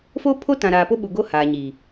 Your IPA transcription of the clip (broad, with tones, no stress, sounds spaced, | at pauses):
f o˦ pʰ o˦ t ã˨ ɾ aː˨ p o˦ ɓ u˨ ɡ o˦ h aː˨ ɲ iː˨